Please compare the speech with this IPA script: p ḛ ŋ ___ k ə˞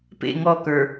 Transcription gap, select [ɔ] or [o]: ɔ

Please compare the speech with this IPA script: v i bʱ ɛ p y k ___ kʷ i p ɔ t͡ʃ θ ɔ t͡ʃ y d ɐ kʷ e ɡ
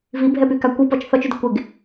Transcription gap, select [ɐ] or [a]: a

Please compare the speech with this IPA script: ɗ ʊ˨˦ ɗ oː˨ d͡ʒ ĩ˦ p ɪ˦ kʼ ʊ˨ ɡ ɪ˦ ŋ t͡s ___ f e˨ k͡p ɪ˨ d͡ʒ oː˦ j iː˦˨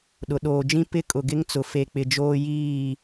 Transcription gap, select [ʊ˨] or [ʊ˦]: ʊ˨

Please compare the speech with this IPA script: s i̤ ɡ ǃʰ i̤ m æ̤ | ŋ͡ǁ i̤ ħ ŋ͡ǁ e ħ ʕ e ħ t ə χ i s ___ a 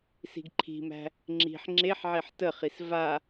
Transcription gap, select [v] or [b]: v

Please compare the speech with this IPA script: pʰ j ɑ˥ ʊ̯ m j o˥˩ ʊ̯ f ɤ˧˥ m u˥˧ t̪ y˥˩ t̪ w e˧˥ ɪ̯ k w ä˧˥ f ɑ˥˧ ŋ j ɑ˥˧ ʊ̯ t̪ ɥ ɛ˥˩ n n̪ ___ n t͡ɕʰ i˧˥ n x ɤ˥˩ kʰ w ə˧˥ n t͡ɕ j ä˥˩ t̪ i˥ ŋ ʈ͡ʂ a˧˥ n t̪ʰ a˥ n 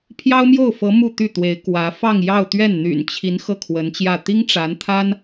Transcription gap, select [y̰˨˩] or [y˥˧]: y̰˨˩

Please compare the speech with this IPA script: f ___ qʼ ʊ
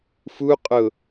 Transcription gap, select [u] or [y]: u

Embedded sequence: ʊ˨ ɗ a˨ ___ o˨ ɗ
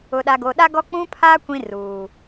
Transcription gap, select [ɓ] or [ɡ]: ɡ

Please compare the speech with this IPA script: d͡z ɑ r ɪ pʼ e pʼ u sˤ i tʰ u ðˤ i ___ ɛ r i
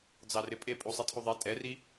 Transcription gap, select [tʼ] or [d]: tʼ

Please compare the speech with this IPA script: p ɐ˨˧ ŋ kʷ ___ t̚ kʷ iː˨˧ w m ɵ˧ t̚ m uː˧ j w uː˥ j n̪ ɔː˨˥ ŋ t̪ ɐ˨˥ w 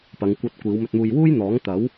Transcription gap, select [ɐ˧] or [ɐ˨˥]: ɐ˧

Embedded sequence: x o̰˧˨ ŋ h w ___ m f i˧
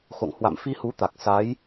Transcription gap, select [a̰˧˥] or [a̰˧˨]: a̰˧˨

